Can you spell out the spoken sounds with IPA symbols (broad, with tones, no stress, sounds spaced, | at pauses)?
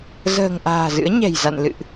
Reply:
z ə̤ː˨˩ ŋ ʔ a̤ː˨˩ z ɨ̰˧˥ ə̯ ɲ ɛ̤˨˩ j z a̰˧˨ n l ɨ̰˧˨ ʔ